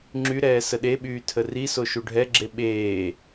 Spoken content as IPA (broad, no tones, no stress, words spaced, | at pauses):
ŋ͡ǁyɾɛː səɗeɓyː tʰəriso ʃuɖʱɛɡ͡ǁe ɓeː